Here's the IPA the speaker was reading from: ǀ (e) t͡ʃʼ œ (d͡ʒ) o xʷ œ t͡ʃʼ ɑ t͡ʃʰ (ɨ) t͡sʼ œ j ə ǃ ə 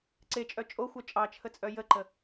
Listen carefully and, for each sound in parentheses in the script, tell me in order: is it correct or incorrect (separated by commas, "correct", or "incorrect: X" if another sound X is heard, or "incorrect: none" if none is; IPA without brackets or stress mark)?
correct, incorrect: t͡ʃʼ, incorrect: ə